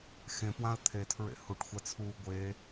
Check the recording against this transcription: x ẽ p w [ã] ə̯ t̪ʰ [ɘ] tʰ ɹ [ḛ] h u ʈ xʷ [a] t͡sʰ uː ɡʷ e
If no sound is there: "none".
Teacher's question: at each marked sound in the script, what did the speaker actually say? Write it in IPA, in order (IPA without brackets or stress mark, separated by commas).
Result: ã, e, ḛ, a